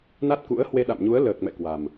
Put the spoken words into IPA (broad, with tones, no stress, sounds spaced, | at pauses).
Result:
n a˦˥ t̚ k ṵ˧˥ ə̯ h w e˧ ɗ a̰˧˨ m ɲ u˨˦ ə̯ l əː˨˩ k̚ m ɛ̰˧˨ k w a˨˩ m